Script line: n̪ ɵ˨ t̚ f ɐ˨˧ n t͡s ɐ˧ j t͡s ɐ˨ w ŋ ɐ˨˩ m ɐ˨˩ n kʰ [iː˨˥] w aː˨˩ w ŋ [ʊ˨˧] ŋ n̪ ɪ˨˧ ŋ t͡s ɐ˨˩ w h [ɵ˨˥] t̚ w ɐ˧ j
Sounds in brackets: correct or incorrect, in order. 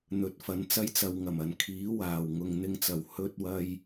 correct, incorrect: ʊ˨, incorrect: ɵ˧

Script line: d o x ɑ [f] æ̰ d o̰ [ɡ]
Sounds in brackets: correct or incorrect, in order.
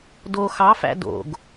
correct, correct

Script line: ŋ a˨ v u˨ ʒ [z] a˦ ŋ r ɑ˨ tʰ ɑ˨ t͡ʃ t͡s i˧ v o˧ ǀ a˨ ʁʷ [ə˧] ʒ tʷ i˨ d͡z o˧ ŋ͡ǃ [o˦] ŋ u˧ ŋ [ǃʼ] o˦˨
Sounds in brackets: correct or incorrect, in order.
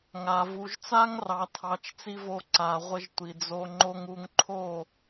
incorrect: t͡s, correct, correct, incorrect: ǃʰ

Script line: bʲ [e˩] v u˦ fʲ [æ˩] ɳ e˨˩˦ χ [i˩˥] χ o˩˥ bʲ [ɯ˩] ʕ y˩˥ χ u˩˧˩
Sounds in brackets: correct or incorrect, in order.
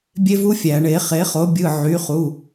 incorrect: e˦, correct, incorrect: e˩˥, incorrect: ɯ˩˧˩

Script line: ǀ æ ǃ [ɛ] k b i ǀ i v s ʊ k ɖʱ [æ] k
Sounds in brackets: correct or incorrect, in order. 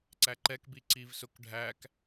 correct, correct

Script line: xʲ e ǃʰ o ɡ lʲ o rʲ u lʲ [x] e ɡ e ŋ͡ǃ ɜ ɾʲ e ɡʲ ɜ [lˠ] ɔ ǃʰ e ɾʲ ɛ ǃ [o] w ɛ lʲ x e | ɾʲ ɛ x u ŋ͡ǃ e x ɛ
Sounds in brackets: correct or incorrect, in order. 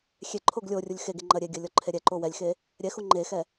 correct, incorrect: lʲ, correct

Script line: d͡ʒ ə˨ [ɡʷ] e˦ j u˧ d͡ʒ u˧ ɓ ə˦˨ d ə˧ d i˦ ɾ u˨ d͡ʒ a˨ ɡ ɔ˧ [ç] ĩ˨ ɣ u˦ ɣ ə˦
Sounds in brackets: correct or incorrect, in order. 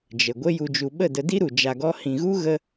correct, incorrect: h

